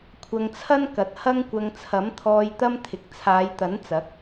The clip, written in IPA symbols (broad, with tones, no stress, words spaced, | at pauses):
kʷʰɐ˧ŋt͡sʰɐ˥nkɐ˨t̚ hɐ˥ŋkʷɐ˧ŋ t͡sʰɐ˨˥mt̪ʰɔː˧j t̪ɐ˥mt̪ʰɪ˨k̚ t͡sʰaː˨˧jt̪ɐ˨˥nt͡sɐ˨˥k̚